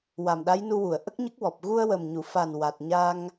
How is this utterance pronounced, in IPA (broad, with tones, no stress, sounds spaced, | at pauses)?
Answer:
w a˨˩ m ɗ a˧˥ j n u˧ w u˨˩˨ ə̯ ʔ ə˦˥ k̚ ɲ ə˦˥ k̚ w ɔ˨˩ p̚ ɣ u˧ ə̯ w ə˨˩ m ɲ u˨˩˨ f a˨˩ n w a˨˩ t̚ ɲ a˧ ŋ